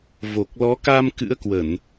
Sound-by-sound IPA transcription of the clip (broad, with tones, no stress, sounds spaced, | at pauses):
v o˨˩ k̚ l ɔ˨˦ k a˧ m k ɨ̰˧˥ ə̯ k w ə˧˩˨ n